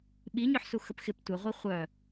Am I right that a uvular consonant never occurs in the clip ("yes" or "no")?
no